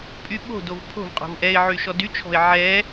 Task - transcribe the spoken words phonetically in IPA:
pʼ y ɓ o̤ d o v pʰ o̤ v qʼ o̤ v ʔ ɛ ɪ̯ ʕ y ʃ ɔ d y t͡ʃʰ ɔ̤ ɪ̯ ʕ ɛ

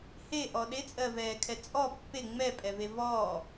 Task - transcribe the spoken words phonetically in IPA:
h e ʔ ɔ ɗ e t͡sʼ ɜ v ɛː kʰ ɛ t͡sʼ ɔ pː e ŋ͡m ɛ pʼ ɛ v e v ɔː

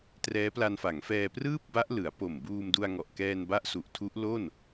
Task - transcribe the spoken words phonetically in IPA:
t r ɛː˦˥ p l a˧ n f a˩˦ ŋ f ɛː˧ p r ɯː˥˩ p̚ b a˦˥ ʔ l ɯ˩˦ a̯ p o˨˩ m b uː˧ m d u˧ a̯ ŋ ɔ˨˩ ʔ k ɛː˧ n b a˦˥ ʔ s u˨˩ ʔ tʰ u˦˥ ʔ l o˥˩ n

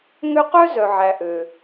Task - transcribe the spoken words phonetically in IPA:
ŋ ø˦ q œ˥ z œ˩ ʕ æ˩ ʔ ø˩

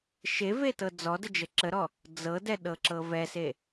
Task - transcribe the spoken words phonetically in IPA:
ʃ e v e t ɤ d͡z ɔ d ə d͡ʒ ə ǁ ə ɾ ɔ | d͡z ɤ d ɛ ɗ ɤ ǁ ɤ v ɛ s e

